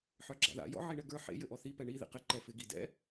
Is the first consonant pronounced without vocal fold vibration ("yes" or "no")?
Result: yes